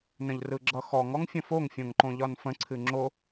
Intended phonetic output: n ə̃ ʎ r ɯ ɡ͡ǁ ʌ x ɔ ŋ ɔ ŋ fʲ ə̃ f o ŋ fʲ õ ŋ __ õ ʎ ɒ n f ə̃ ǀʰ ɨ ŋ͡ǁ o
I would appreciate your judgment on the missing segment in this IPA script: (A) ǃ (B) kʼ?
A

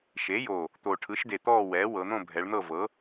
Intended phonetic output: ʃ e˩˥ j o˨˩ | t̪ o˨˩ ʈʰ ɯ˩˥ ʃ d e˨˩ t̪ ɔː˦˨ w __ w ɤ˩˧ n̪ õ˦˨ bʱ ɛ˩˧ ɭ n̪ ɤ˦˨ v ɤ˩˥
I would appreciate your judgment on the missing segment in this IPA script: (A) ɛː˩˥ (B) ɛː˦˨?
A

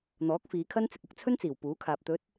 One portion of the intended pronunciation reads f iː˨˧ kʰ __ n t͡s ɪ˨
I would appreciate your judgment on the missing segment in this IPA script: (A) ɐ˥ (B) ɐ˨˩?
A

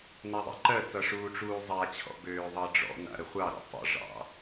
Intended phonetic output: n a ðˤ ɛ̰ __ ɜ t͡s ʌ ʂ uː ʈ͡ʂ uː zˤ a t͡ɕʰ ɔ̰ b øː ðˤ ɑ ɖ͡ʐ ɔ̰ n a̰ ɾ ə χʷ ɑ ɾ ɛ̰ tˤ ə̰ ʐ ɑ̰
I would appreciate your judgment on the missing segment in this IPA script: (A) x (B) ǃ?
B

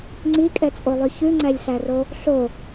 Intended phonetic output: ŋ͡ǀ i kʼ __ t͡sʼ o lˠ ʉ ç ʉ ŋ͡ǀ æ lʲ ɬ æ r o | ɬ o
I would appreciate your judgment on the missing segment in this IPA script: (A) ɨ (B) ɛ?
B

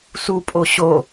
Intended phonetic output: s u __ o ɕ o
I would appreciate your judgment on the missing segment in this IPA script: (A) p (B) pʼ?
B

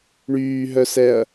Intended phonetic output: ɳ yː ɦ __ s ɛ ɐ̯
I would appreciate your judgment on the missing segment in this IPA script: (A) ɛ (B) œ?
B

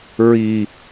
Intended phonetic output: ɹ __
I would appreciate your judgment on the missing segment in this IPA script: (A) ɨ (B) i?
B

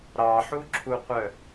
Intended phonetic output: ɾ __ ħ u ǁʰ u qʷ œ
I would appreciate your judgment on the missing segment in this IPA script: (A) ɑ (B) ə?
A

